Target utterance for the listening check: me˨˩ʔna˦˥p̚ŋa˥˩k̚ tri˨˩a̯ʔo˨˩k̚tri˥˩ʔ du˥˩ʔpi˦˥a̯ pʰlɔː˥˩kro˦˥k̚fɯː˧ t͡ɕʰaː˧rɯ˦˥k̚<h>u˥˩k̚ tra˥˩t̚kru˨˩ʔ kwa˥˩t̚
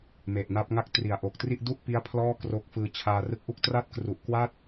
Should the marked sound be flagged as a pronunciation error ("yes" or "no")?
yes